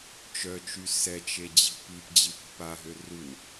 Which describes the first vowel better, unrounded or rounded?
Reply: rounded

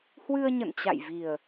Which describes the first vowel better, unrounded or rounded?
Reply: unrounded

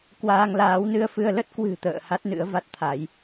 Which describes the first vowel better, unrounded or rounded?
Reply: unrounded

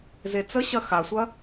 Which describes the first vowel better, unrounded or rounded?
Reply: unrounded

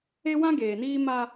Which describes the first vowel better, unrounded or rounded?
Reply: unrounded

